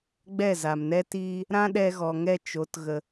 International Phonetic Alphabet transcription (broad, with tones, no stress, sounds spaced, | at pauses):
ɡ͡b ɛ˦˨ z a˨ m n ɛ˦ t iː˦ | ɾ ã˦ ɗ ɛ˧ ɣ ɔ˨ ŋ ɛ˧ t͡ʃ o˨˦ t ɣ ə˧